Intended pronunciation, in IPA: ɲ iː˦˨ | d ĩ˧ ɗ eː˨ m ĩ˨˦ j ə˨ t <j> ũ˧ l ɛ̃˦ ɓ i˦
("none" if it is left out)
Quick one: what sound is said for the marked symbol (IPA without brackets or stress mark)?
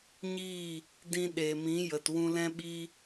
w